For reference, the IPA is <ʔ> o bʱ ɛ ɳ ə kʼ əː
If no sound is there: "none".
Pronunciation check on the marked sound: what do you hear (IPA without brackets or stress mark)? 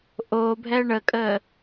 ʔ